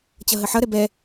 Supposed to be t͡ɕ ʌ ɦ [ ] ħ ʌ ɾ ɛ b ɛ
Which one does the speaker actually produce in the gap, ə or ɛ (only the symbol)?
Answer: ə